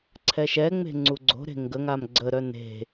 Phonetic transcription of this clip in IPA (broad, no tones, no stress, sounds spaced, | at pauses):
ǀʰ ɛ ʃ ɛ ŋ͡m e̤ ŋ͡ǀ u ɡ͡ǀ o̤ ɾ e̤ ŋ ɡ ə ŋ a m ɡ͡ǀ ə ɾ œ n e̤